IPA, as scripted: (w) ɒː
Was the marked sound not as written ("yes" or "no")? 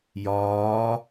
yes